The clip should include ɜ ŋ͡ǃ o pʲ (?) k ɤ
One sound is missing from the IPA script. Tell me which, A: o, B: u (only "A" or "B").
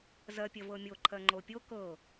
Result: A